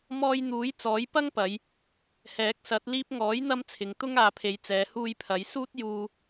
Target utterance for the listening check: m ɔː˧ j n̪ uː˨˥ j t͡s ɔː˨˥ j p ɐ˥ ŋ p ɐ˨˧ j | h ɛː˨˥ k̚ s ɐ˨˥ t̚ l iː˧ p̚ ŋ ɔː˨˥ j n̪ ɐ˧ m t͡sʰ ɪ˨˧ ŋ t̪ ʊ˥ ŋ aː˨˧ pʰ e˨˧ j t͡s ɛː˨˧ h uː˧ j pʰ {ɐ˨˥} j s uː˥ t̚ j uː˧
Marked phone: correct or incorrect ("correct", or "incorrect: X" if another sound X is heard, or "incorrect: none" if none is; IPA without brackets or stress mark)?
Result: correct